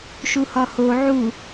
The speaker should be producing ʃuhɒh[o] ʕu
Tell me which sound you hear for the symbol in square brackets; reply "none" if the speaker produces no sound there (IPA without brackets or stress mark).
o